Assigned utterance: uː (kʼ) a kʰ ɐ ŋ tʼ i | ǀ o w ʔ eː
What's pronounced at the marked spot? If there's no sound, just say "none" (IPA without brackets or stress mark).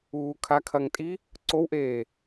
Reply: kʰ